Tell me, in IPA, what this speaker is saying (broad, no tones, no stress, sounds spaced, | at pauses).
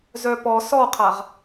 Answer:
z œ p ɔ s ɔ qʰ a ʁ